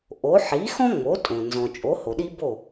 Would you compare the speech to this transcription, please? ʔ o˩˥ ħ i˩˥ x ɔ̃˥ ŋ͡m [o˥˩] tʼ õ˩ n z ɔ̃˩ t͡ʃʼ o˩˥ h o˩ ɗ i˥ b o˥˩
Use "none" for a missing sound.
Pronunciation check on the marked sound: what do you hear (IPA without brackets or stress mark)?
o˩˥